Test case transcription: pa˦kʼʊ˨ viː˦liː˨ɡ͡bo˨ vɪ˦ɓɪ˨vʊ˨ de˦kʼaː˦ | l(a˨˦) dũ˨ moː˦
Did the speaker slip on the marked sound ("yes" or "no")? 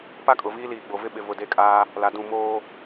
no